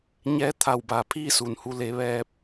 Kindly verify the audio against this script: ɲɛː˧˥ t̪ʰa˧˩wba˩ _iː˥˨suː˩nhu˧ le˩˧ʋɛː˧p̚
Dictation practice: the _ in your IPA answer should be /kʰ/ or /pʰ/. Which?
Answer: pʰ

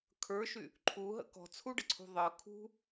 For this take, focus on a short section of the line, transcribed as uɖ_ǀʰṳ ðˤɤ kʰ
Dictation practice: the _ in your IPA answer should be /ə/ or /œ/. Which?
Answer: ə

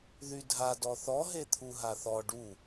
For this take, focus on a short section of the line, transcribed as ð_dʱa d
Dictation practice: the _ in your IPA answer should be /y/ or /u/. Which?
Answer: y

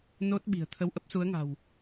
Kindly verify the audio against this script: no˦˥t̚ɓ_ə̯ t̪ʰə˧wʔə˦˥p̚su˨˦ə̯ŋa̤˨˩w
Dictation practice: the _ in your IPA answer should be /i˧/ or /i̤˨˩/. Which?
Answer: i̤˨˩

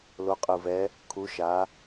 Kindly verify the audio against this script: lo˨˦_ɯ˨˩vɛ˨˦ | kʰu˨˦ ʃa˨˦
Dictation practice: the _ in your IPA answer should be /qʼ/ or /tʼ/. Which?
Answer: qʼ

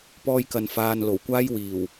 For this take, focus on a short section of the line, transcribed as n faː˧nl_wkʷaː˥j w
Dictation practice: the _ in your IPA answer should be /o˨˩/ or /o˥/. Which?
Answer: o˨˩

